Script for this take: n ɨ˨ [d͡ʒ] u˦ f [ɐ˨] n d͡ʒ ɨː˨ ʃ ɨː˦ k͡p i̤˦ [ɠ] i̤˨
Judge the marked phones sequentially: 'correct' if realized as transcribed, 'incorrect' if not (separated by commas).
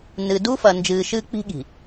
incorrect, correct, correct